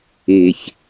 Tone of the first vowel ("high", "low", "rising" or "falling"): low